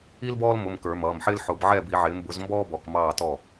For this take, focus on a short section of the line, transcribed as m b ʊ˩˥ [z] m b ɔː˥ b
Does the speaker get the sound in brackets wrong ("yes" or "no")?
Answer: no